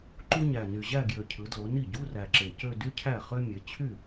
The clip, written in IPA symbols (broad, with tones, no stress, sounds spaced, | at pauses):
ǃ u˥ ɲ æ˨˩ n y˨˩ ʑ æ˥˧ ɡ j ø˨˩ cʰ ɯ˩˧ d l o˩˧ n i˥˩ ɟ u˧˥˧ r æ˨˩ ǁ e˨˩ c ø˥˧ d y˥ cʰ æ˥˩ χ ø˥ mʲ e˩˧ t͡ɕʰ y˥˩